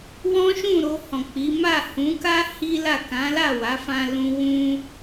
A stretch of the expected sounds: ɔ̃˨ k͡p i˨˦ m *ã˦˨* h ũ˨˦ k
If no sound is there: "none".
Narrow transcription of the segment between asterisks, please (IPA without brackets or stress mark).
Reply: a˦˨